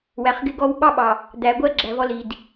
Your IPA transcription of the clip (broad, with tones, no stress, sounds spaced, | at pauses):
w æ˨ χ ɡ ɪ˦ ɡ ɔ˦ w ɓ ɑ˦ ɓ ɑ˨ | d̪ æ˨ ɡʷ ɜ˦ ɡ͡ǁ æ˨ v ɔ˦ l i˨ d